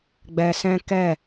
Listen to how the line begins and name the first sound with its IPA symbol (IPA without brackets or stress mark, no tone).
ɡ͡b